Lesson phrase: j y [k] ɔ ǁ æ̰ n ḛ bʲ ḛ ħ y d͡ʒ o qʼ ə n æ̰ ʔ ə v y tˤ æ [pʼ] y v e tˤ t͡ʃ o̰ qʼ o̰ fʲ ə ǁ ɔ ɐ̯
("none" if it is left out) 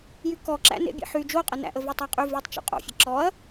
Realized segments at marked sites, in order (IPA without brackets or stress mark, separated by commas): k, qʼ